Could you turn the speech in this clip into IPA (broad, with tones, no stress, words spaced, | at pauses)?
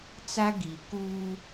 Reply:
t͡sa˦ɡi˨ kuː˦